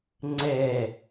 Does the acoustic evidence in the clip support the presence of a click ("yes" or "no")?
yes